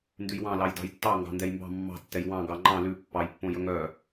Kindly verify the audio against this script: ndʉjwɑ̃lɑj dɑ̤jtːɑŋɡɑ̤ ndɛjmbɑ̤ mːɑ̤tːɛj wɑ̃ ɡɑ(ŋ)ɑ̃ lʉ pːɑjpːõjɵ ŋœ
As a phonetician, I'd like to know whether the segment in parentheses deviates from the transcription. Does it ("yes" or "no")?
yes